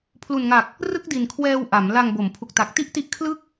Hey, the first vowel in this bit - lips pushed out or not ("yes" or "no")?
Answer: yes